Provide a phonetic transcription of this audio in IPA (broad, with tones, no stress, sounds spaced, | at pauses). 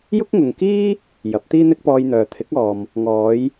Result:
j ʊ˥ k̚ ŋ ʊ˨ ŋ k iː˥ | j ɐ˨˥ p̚ t̪ iː˥ n̪ ɪ˥ k̚ p ɔː˧ j n̪ œː˨ t̪ʰ ɪ˨˥ k̚ ɔː˨ m | ŋ ɔː˨˧ j